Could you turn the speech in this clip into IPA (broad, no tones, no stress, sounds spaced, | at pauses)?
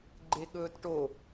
ɡ͡ǃ e ɠ ɵː t ʈ o